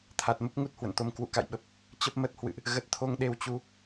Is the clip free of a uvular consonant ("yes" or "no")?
yes